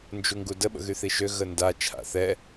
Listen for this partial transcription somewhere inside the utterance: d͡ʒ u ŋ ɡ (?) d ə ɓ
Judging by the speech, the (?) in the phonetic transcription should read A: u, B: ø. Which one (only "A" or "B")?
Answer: A